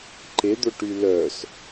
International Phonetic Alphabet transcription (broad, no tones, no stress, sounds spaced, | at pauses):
ǃ e d̪ o ʈ y l œ s